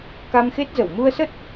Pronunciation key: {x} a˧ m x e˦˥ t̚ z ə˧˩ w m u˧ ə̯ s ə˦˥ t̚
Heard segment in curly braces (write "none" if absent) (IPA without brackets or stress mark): k